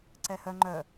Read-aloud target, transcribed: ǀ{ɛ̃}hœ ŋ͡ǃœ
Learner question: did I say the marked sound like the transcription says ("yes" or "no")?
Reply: no